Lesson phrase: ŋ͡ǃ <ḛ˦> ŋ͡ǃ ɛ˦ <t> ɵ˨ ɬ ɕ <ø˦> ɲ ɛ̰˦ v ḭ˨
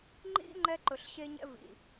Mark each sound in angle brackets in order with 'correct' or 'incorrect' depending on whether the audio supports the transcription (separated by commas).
incorrect, incorrect, incorrect